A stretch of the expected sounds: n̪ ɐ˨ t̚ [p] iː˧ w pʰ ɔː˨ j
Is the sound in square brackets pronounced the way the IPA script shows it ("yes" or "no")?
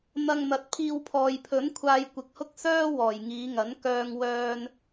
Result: no